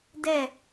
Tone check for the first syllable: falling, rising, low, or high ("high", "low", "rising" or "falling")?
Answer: falling